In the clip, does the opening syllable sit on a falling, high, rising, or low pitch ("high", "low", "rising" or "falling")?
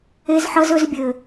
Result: high